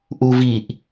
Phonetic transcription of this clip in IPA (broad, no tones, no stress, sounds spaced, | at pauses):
ʔ u v i ʔ